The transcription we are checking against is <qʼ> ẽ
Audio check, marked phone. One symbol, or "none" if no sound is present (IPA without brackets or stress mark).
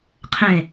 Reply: qʰ